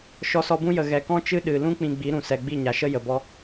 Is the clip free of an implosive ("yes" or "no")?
no